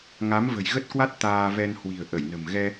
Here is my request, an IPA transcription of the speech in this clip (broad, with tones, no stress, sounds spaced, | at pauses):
ŋ a˨˦ m v ə̤˨˩ j ɣ ə˦˥ t̚ k w a˦˥ t̚ t̪ aː˧ v ɛ˧ n h w i̤˨˩ ə̯ ʔ ə˧˩ j n ə̤˨˩ m ɣ ɛ˧